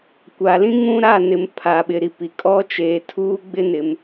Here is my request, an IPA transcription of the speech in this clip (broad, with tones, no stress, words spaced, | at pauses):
kʷa˨lĩ˦ŋũ˦ɾa˦˨ nɪ˨m pʰa˨ ɓɪ˨ɾi˨pi˨ kʼɔ˦t͡ʃeː˨ tʰuː˦ɡ͡bɪ˦ nɪ˨m